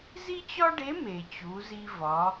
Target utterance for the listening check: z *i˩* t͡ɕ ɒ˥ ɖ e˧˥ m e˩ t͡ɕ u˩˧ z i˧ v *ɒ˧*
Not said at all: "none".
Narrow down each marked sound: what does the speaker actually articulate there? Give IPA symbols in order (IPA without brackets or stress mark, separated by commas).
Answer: i˥, ɒ˩˧